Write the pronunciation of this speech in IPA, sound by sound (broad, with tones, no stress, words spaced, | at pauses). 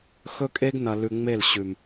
xɵ˦kʼe˦ɡ nɐ˧ lʉ˧ŋ͡me˦˨l ɕʉ˨m